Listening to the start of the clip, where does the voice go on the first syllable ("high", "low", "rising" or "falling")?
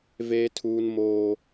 high